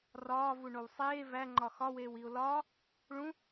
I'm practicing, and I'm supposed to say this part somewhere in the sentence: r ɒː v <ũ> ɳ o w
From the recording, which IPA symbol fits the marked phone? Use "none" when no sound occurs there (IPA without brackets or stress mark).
u